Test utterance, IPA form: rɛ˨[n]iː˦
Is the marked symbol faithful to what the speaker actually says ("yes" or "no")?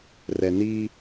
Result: yes